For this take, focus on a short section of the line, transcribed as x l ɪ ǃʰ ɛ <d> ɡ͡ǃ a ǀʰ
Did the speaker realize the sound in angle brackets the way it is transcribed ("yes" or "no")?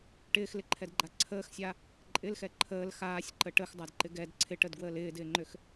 yes